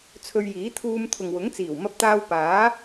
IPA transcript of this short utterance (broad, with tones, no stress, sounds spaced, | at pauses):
t͡sʰ ɵ˧ ɥ j iː˨˥ t̪ʰ uː˧ m t̪ʰ ʊ˨ ŋ w ʊ˨˥ ŋ t͡s iː˨˩ w m ɐ˧ p̚ t̪ aː˧ w p aː˨˥